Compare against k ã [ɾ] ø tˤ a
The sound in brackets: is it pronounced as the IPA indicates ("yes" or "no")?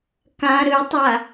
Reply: yes